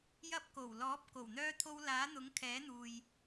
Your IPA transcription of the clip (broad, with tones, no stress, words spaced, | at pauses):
jɐ˧p̚ko˨˩wlɔː˨˥p̚ ko˨˩wn̪œː˧ t̪ʰo˧w laː˨˥n̪ʊ˨˥ŋkʰɛː˨˥n̪uː˨j